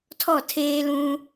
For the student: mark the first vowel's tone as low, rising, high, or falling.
falling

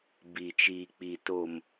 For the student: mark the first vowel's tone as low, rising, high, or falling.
low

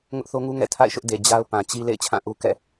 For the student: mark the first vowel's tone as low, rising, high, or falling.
high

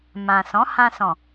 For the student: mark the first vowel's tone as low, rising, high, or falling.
low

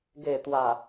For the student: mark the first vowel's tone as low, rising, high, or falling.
low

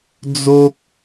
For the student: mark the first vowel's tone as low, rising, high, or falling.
high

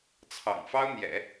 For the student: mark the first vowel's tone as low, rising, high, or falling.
low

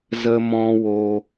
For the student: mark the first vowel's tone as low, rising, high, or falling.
high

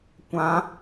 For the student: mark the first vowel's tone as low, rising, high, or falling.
rising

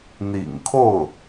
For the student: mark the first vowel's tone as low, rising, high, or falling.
low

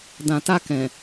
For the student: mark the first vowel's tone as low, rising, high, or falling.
low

